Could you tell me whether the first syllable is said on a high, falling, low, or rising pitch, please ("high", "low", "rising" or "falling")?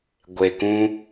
low